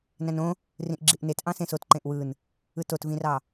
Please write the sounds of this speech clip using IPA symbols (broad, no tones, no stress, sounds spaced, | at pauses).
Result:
n æ̃ n õ | r ĩ ʔ ɡ͡ǁ i ʔ n e t ʔ ɑ̃ s ẽ s o t ǃ ẽ ʔ w ɯ n | ɯ t o t v ĩ r ɑ